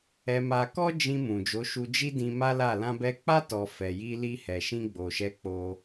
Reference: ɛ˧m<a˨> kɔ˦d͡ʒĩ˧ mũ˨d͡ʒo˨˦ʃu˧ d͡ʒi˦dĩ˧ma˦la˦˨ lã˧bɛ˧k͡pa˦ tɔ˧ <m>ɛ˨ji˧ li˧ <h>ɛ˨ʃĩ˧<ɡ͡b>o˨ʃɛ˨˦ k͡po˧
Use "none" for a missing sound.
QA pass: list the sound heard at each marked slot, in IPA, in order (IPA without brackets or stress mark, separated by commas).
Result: a˧, f, h, ɡ͡b